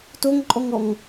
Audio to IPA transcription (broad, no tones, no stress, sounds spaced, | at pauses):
t o ŋ ǃʼ ɔ ŋ ɔ ŋ